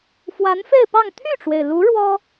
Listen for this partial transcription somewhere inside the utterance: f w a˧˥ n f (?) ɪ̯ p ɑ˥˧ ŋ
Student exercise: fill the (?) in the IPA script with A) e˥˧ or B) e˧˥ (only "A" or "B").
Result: A